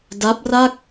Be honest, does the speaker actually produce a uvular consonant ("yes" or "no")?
no